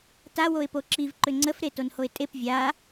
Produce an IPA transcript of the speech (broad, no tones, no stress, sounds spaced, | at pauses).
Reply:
t a w o ɪ̯ p o ǁ i v ǃ ʏ ŋ͡ǀ ə f ɾ e t o n h o ɪ̯ tʼ e p vʲ a